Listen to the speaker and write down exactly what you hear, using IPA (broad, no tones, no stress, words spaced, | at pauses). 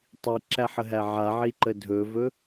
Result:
tˤiǁæħəɦæ ʕaʕiǃə dʱɵvɵ